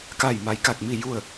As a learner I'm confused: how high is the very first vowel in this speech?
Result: low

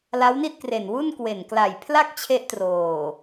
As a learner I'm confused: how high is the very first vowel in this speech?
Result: low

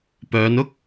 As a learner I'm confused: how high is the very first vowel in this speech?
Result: mid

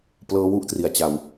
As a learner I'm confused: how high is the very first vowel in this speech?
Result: mid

